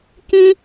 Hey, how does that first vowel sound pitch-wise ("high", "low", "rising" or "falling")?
high